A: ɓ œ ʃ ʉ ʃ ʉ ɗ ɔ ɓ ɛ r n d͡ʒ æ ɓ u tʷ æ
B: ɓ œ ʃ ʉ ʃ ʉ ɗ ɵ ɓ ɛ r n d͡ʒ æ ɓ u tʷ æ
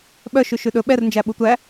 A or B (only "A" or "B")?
B